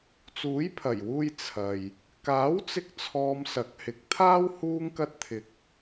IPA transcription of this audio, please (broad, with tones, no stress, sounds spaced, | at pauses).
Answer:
t͡s uː˨˥ j pʰ ɐ˨˩ j w uː˧ j t͡sʰ ɐ˨ j | k aː˨˥ w t͡s ɪ˥ k̚ t͡sʰ ɔː˧ m s ɐ˨˥ k̚ h ɪ˨˥ k̚ t̪ʰ aː˥ w h uː˥ ŋ k ɐ˥ t̚ t̪ʰ ɪ˧ k̚